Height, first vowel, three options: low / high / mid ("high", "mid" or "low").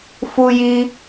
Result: high